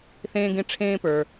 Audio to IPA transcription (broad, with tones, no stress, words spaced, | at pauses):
θẽː˦ɡẽ˦ ʈ͡ʂʰẽː˦pə˞˩